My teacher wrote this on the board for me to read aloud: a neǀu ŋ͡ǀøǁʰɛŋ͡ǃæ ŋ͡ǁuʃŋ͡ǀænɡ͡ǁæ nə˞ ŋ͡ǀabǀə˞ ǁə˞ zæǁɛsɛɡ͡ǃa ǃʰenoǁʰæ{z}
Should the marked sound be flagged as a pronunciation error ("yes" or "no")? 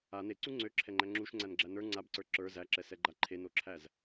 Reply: no